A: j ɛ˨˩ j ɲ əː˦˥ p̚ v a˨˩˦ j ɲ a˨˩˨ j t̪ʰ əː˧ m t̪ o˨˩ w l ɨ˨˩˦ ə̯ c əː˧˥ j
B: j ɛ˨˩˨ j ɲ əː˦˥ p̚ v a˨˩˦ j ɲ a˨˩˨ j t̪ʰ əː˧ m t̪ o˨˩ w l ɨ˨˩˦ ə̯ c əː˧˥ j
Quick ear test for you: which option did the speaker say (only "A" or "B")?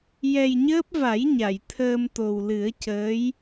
A